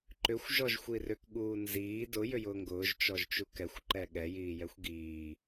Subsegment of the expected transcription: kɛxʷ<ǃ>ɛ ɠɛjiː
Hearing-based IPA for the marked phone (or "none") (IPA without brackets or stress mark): ǃ